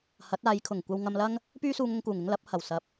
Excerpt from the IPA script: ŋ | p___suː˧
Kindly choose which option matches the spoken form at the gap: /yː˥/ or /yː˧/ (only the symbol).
yː˥